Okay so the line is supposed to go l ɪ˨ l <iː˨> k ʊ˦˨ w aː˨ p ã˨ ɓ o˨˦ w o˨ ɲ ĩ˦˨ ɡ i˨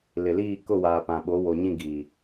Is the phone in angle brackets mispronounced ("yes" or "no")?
yes